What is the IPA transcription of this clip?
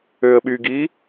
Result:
øə̯ɓyɡi

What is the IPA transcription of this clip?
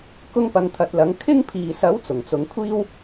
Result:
kʊ˥ŋpɐ˨˧ŋt̪ʰɐ˨˥t̚lɐ˨˥ŋ kʰɪ˥ŋpʰiː˨ sɐ˨˥w t͡sʊ˨˩ŋt͡sʊ˨˧ŋkʷʰiː˥w

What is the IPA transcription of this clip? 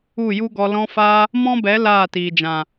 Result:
u˦˨ju˦ɡɔ˧ lɔ̃˧faː˧ | mɔ̃˦bɛ˨˦ laː˦˨tiː˨d͡ʒã˨

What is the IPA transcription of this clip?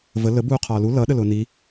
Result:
və lə buːqʰɒːlu lʌ ɗəlʊːni

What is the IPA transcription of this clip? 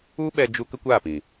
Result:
u˦ɓɛ˧ d͡ʒu˦ kə˦kʷaː˦˨pĩ˨

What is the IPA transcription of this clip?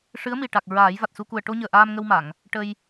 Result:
ʂɨ˧˥ə̯mi˨˩ʈa˨˩k̚ ɹaː˨˩˦jva˨˩t̚su˧ku˨˩ə̯ ʈo˧ɲəː˨˩ ʔaː˧mŋə˧wma˨˩˨ŋ | ʈə˧j

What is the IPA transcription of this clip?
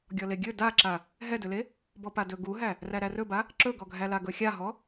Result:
ɡʲɔleɡʲɵ daǁa | ɦɛdɵle | bɔpadɵ ɡuɦæ | ræɾærɵba | ǁɵɡɔɡʱæla ɡɵxʲaɦɔ

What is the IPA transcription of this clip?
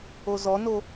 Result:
ozɔno

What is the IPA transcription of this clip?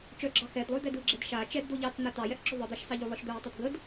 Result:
t͡ʃœɡ͡ǁɑ xɛdlˠʊj d̪ɛdɯɡ͡ǁɛd ʃa t͡ʃɛd d̪oʎɑt͡sn̪a tɑjɛʔǁʊ ðˤɯd̪ɑʃsɑʎo lˠɯʃd̪œjtˤʊd ɡəd

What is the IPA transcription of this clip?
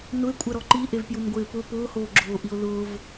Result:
nʊe̯kʷʼɛɾɔ ǃiʔevpjunɡʷɪː pʊ pʊːhoːɡ͡ǁoːʔio̯ lʊːv

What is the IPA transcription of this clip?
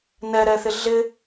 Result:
nɛɾɛθɪ ɮɪ

